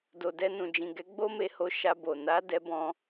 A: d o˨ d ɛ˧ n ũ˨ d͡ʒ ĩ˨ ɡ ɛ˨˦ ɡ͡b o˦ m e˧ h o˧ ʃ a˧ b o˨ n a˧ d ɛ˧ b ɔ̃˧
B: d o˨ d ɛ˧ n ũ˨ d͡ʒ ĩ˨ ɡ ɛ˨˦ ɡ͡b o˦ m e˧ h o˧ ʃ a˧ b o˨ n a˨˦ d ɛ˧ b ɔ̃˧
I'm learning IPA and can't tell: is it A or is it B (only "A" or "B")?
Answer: B